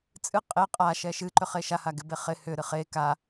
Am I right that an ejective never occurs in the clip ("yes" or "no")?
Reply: no